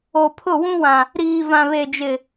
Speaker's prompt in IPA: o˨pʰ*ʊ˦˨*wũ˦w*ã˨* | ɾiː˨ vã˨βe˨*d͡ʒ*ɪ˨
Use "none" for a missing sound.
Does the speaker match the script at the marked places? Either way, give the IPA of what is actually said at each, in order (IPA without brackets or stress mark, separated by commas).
ʊ˦˨, ã˨, d͡ʒ